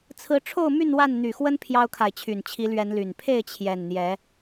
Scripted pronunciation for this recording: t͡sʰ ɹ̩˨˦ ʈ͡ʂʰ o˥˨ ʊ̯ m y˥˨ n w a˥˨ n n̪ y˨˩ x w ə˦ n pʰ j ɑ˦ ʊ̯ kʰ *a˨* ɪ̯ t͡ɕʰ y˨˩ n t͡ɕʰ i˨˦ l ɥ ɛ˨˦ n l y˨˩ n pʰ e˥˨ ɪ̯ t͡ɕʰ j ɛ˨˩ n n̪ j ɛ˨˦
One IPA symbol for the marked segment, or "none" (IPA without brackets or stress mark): a˨